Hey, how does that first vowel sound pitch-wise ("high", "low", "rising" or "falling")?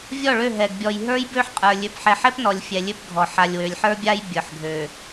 falling